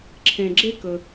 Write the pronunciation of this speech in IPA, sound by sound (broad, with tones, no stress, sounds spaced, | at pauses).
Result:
ǁʰ ẽ˩ ɡ͡ǁ e˥ k ɵ˩